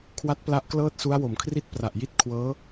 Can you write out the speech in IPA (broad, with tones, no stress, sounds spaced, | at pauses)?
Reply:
kʰ w a˦˥ t̚ p l a˦˥ ʔ k l ɤː˥˩ t̚ s u˦˥ a̯ w o˩˦ m kʰ r i˥˩ t̚ p r a˨˩ ʔ j i˥˩ t̚ kʰ w ɤː˦˥